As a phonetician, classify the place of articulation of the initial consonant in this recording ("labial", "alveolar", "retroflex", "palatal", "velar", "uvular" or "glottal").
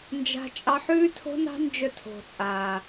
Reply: alveolar